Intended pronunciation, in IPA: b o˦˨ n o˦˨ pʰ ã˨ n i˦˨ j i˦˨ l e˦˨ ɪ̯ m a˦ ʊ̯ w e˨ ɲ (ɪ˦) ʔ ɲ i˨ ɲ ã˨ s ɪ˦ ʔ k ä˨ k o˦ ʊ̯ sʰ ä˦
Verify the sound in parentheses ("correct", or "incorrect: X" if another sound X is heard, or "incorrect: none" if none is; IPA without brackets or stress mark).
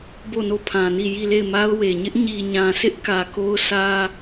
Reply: correct